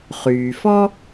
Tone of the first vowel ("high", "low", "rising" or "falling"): low